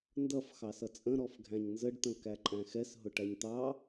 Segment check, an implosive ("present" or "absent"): absent